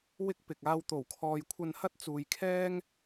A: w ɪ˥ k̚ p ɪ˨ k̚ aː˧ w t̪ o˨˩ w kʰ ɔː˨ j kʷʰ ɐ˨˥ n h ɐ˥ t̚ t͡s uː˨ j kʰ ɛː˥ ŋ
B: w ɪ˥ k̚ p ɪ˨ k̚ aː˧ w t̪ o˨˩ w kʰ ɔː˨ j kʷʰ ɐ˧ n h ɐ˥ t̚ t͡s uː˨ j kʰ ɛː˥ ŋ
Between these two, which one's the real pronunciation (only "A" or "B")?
B